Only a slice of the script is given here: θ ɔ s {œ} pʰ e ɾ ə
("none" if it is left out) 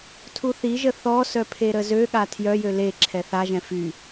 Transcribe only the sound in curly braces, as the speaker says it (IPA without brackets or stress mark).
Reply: œ